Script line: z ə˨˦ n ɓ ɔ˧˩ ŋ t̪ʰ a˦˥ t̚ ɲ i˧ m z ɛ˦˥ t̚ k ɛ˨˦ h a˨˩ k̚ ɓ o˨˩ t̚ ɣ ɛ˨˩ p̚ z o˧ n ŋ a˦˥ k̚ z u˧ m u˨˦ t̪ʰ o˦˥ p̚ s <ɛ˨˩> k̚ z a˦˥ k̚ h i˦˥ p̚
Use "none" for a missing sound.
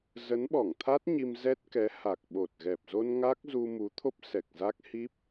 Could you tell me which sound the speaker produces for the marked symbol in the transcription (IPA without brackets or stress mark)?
ɛ˨˩